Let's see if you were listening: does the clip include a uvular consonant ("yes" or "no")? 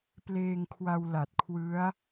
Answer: no